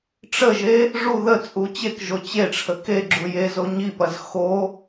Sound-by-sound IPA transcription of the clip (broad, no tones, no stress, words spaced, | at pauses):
ʈ͡ʂəʒe | ʐu ðə t͡sʼut͡ɕekʒo t͡ɕeʈ͡ʂʰə keɡ͡ǁu je zoɲipɐz xo